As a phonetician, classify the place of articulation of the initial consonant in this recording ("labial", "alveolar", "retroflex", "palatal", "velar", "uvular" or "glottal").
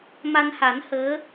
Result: labial